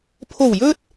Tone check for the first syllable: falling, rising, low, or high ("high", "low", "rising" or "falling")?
low